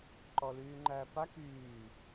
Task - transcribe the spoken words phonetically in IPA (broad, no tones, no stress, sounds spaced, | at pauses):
ǃ ɔ l yː ŋ͡ǃ æː p a k yː